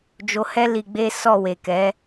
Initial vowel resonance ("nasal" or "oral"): oral